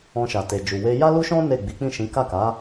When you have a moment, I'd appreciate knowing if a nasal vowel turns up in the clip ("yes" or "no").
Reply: yes